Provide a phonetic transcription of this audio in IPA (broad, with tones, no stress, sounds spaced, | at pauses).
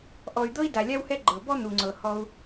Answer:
ʔ ɔ˨ y̯ d̪ ɤ˥ i̯ d a˩ lʲ a˦ w h ɛ˦ ɡ͡ǃ ɤ˩ b ɔ˥ n̪ u˩ ŋ͡ǀ ɤ˩ h ɔ˨ u̯